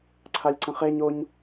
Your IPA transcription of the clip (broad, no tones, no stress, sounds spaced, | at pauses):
ǀʰ a lʲ ǀ ə̃ χ e ɲ o ɲ